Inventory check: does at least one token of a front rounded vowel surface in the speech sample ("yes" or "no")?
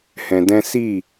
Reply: no